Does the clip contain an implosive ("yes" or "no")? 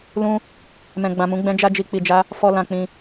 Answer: no